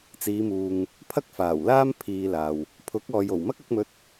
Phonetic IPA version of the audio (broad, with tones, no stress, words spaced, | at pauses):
t͡siː˨˧muː˨ŋ | pʰɐ˥k̚faː˨˩wlaː˥m pʰiː˧laː˨w | pʰʊ˨˥k̚ɔː˨jo˨˩w mɐ˥k̚ɐ˨˥k̚mɵ˧t̚